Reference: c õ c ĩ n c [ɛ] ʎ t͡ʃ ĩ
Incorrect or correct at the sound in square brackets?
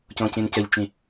incorrect: ə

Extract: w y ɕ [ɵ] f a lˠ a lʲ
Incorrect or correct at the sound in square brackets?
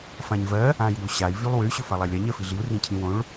correct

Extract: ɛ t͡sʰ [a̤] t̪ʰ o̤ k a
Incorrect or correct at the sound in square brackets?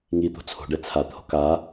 incorrect: a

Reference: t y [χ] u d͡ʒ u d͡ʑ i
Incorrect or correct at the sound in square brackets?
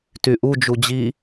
incorrect: ʔ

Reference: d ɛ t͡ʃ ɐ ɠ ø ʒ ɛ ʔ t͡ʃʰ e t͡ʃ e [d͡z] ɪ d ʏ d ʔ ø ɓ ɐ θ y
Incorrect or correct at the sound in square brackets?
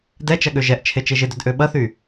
incorrect: ʒ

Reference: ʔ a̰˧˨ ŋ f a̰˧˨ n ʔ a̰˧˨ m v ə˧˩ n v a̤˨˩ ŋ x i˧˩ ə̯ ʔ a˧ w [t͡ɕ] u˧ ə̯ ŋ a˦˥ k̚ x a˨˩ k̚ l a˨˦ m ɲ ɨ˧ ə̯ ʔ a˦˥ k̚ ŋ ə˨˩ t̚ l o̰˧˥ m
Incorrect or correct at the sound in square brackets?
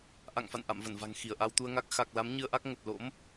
incorrect: t̪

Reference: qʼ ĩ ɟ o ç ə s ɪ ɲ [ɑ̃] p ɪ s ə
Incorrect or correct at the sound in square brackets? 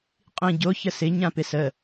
incorrect: ã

